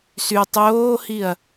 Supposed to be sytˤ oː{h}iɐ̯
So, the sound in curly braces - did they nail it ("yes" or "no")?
yes